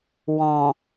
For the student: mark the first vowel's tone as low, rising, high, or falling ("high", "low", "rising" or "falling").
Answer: low